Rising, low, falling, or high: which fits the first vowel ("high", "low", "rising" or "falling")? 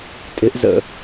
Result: rising